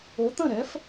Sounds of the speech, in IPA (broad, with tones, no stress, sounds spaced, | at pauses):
o˩˥ t̪ ə̃˥˩ ɾ ɛ˩˥ f